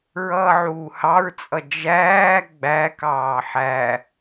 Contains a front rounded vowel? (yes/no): no